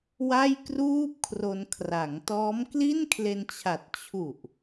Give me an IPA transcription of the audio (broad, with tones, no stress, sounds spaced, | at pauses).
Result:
w a˥˩ j k r uː˥˩ p̚ kʰ r o˧ n kʰ r a˩˦ ŋ t ɔː˦˥ m k l i˥˩ n kʰ l e˧ n t͡ɕʰ a˨˩ t̚ t͡ɕʰ u˨˩ ʔ